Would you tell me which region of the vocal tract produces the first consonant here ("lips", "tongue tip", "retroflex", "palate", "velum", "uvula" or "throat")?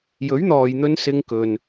palate